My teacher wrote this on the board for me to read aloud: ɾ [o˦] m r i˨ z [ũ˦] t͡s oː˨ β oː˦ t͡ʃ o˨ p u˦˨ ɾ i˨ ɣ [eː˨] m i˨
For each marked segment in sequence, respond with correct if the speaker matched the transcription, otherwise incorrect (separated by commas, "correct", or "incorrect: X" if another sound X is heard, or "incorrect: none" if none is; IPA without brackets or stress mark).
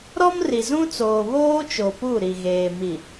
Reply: incorrect: ɔ˦, correct, correct